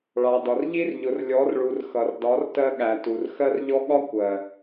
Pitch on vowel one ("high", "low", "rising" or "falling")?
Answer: low